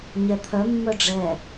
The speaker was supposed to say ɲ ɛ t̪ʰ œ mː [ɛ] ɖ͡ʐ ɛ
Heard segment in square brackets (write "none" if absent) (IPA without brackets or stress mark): œ